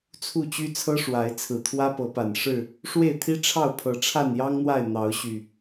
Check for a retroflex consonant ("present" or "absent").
present